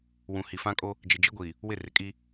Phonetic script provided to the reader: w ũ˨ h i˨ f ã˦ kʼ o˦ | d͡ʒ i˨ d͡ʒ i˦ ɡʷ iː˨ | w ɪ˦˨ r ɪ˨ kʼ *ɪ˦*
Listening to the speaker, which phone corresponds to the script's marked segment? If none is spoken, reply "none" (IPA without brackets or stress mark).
i˦